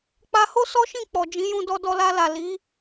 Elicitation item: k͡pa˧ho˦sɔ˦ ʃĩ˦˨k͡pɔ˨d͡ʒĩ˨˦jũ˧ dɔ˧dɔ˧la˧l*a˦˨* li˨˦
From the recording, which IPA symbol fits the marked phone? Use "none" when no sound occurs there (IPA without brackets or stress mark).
a˨